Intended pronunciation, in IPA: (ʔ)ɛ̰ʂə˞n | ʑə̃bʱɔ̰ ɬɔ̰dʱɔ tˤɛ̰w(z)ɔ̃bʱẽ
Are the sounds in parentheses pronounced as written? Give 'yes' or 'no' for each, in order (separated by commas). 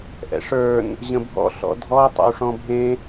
yes, no